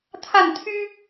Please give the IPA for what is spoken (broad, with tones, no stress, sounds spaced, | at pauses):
t̪ʰ a˥˩ n t̪ʰ y˥